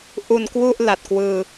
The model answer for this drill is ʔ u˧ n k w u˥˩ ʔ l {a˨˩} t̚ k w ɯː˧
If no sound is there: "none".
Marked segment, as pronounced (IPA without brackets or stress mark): a˨˩